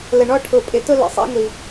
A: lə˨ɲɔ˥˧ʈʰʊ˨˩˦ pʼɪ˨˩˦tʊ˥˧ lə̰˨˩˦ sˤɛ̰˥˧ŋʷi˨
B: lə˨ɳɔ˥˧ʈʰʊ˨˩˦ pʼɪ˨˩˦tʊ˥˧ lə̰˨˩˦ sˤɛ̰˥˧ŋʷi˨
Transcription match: B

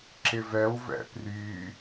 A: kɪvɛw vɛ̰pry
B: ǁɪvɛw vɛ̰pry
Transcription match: B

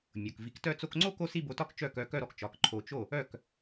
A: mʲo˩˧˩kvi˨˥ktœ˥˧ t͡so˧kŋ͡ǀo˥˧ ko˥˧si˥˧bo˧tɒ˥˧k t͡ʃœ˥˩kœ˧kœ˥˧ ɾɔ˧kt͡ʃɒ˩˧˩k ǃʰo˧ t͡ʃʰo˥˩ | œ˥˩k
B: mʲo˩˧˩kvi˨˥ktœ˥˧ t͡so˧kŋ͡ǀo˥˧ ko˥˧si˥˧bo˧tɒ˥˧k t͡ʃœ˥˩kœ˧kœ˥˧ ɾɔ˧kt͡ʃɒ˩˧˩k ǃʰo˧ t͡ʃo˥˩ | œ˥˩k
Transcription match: B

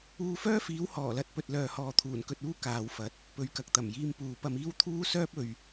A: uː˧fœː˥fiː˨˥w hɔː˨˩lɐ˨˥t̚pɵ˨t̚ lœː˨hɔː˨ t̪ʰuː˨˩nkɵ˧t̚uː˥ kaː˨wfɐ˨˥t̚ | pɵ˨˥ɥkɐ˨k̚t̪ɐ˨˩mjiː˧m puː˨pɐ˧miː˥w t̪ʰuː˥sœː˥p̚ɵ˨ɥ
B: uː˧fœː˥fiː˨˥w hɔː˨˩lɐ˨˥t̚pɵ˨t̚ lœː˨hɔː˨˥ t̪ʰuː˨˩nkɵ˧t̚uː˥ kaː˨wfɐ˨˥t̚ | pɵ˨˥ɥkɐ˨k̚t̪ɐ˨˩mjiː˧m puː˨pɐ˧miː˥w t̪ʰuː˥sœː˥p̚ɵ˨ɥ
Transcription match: A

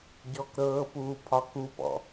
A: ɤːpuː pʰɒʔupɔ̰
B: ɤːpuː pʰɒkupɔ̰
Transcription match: B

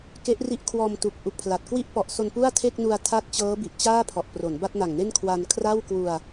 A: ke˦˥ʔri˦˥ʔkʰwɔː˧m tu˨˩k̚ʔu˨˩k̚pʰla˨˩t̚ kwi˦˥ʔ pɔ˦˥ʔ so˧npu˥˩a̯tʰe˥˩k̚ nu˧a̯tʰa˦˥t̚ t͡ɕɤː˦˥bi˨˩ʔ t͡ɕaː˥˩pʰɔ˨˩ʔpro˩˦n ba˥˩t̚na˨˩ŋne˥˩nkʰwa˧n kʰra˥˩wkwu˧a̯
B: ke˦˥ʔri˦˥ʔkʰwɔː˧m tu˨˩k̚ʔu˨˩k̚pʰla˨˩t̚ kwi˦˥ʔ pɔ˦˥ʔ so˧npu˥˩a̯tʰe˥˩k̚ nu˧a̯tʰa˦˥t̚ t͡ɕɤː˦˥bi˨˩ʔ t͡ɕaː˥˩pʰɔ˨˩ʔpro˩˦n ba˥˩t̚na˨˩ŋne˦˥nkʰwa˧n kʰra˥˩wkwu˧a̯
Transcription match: A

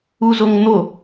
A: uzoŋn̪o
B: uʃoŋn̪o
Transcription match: A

